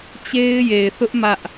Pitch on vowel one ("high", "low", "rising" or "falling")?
high